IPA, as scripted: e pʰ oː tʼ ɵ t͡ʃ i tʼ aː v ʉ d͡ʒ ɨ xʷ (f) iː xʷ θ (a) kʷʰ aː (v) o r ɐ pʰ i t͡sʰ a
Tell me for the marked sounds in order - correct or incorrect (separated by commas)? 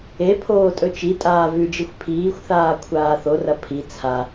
incorrect, incorrect, incorrect